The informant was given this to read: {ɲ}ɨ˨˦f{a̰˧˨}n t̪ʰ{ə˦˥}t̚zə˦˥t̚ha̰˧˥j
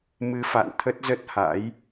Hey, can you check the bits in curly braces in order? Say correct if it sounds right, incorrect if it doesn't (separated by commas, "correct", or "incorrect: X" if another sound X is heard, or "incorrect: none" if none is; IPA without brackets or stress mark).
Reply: incorrect: m, correct, correct